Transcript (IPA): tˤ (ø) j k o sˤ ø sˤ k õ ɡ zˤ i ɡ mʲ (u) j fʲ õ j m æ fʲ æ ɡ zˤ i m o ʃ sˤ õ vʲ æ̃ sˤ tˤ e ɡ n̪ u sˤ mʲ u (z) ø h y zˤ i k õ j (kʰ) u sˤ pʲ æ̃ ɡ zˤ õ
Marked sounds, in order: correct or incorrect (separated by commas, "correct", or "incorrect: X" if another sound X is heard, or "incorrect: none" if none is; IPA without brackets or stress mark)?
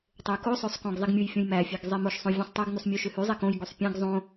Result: correct, correct, incorrect: ʃ, incorrect: ɡ